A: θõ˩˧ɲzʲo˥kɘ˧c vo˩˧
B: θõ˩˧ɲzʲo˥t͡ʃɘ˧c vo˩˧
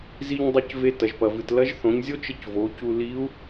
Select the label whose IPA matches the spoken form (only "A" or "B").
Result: B